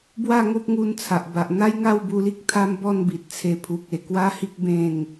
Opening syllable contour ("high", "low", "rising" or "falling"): falling